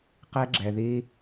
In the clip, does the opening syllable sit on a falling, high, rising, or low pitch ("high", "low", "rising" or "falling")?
high